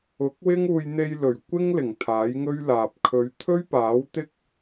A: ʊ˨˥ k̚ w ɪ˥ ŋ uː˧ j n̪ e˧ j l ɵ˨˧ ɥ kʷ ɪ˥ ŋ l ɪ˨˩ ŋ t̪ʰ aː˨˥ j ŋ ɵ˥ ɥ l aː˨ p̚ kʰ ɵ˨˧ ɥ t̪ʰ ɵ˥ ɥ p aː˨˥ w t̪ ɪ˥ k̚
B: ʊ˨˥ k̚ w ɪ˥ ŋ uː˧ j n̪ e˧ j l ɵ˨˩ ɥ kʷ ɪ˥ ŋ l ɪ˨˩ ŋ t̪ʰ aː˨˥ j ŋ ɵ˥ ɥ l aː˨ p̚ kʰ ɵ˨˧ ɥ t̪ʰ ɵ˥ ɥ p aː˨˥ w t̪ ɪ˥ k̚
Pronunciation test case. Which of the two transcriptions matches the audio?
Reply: B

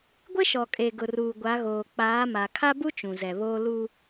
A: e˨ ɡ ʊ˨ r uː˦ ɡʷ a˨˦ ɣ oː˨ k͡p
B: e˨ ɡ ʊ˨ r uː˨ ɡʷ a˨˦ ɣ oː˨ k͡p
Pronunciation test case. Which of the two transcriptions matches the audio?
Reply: B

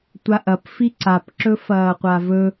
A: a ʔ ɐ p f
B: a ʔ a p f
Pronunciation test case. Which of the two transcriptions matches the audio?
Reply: A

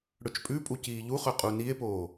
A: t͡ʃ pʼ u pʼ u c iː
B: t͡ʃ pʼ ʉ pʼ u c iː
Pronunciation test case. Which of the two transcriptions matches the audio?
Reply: B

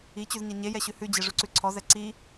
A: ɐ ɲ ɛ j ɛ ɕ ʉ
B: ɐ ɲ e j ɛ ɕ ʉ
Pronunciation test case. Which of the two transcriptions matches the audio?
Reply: B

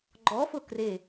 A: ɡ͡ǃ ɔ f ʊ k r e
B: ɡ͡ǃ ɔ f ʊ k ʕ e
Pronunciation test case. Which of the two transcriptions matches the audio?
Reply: A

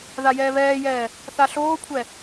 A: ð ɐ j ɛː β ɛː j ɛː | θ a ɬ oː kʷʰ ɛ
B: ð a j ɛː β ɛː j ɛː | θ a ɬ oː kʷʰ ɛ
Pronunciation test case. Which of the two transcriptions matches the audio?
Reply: B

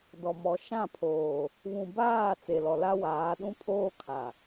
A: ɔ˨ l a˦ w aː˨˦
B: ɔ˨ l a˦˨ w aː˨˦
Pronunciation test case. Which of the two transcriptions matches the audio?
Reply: A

